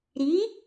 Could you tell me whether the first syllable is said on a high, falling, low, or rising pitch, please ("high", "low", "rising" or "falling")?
rising